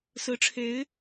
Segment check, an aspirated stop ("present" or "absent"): present